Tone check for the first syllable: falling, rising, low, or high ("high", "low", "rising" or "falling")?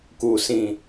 low